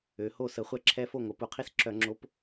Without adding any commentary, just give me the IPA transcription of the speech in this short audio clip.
ø˩˧ho˥˨sə˧˩˧ χʷɛ˥˨ǁʰɛ˦˥fo˥˨ŋʷə˩˧ pu˧˩˧qʰi˥˨sǁœ˧˩˧ŋ͡ǁo˨˥p

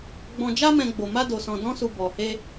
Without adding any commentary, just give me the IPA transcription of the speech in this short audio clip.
ɡ͡bɔ̃˧d͡ʒa˦mɛ̃˧ ɡ͡bo˧ma˦do˧sɔ̃˧ dɔ̃˦su˧ bɔ˧he˦

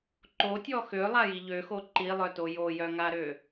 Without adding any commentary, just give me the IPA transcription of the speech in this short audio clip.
ǃotʲɔ xølˠaji ʎøxo ǃilˠœto jojœŋaɾø

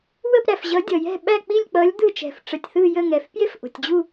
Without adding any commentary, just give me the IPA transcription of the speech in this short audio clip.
wə˦˨pɾæ˩fʑʌ˨˦ dʲʌ˩jɛ̤˦˨ɓæ˦˨ k͡pi˦˨lʲk͡pʌ˨˦lʲ d̪ɯ˦˨t͡ʃɛ̤˩f ʈ͡ʂə˩tʲθɯ˦˨jə˦˨ŋɛ˩f pje˥fʔo̤˩tʲd͡ʑu˦˨

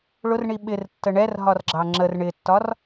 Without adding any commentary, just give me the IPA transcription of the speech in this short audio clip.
ɭʊrɳi ɓɪrtːə ɳɛrɦɒrɡ͡ǁɑ ŋ͡ǁər ɳɪtːɒr

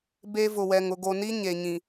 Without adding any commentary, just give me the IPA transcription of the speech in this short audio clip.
be˦vʊ˨wɛ˨ŋ ʊ˨ɡo˨ni˦ ɲe˨ɲĩ˨

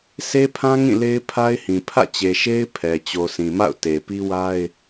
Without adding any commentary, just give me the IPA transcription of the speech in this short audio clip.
se˦pʰã˦ ŋĩ˦˨le˦ɪ̯pʰa˦ɪ̯hĩ˨ pʰä̰˦˨t͡ɕe˨ʃe˦ɪ̯ pʰɛ˨ t͡ɕo˨sĩ˨ma̰˦˨ʊ̯ te˨ pi˦wa˦ɪ̯

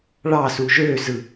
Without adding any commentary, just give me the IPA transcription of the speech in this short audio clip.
ɭɑsu ʒøzɯ

